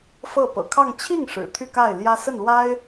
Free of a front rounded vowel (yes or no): no